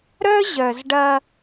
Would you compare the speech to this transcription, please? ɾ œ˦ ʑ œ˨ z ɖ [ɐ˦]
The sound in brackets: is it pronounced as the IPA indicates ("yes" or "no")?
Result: yes